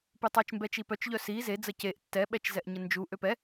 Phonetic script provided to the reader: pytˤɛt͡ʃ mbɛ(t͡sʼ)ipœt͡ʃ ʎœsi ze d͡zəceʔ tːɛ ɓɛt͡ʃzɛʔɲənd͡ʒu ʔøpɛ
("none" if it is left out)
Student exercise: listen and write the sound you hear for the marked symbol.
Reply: t͡ʃ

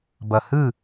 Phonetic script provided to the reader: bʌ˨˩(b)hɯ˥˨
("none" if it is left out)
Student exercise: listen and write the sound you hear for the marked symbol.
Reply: none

